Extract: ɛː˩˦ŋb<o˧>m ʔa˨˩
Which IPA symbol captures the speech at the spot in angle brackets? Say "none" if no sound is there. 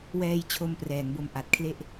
o˧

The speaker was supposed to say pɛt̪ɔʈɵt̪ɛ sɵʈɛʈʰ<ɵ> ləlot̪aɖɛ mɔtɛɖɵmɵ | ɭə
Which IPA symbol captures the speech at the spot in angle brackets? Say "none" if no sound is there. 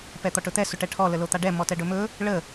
ɔ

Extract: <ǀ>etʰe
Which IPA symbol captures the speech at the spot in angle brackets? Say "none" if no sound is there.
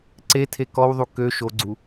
ǀ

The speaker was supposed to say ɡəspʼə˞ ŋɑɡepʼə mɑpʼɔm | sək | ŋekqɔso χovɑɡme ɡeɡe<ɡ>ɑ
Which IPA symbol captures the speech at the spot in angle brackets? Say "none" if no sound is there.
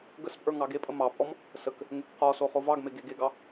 ɡ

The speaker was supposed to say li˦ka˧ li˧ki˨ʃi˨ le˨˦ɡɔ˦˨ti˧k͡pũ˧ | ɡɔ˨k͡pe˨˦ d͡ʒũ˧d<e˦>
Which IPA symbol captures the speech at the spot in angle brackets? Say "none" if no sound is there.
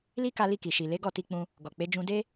e˦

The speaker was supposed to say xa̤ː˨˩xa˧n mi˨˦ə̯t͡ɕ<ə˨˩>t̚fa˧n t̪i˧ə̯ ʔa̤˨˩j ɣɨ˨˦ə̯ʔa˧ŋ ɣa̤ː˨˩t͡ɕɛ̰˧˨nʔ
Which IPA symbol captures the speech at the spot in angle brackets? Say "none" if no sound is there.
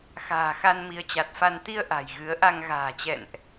a˨˩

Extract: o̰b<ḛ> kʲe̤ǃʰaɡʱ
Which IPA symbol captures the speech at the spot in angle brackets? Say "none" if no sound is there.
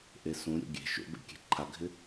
ḛ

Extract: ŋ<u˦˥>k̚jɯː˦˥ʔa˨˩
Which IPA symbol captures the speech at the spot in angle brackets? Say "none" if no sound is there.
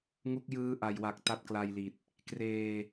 u˦˥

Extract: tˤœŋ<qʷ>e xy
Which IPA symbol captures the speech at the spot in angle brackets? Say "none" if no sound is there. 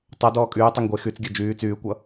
ɡʷ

